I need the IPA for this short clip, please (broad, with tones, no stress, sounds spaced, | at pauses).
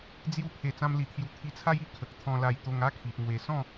d͡z j u˥˧ pʰ e˧ t͡s ã˦ m l i˧ t̪ʰ j u˧ t̪ʰ i˧ t͡sʰ a˦ j i˥˧ kʰ ə˨ k̚ t̪ʰ ɔ̃˧ l a˧ j t̪ o˧ ŋ a˦ kʰ i˨ ʔ ŋ w e˨˩ s ɔ̃˥˧